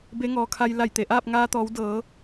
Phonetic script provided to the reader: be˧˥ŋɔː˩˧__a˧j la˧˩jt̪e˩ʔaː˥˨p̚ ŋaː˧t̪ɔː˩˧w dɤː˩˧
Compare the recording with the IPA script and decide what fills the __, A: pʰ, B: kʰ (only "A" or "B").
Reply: B